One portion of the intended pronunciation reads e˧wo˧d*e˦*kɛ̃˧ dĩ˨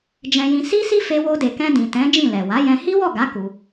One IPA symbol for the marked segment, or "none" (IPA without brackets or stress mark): e˨